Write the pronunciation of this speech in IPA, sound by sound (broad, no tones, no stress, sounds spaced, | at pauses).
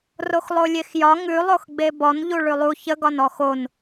r o x lˠ o lʲ e x j ɒ ŋ ʉ lˠ o x ɡ͡b e b ɔ n ʎ u ɭ ʉ lˠ u ç ə ɡ ɒ n ɔ x o n